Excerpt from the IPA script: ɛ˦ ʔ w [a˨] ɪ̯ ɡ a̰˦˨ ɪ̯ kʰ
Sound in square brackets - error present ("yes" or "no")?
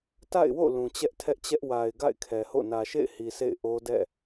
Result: no